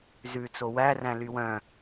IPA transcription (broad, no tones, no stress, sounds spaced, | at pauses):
z ʉ t͡s o w æ r æ̃ l y w œ̃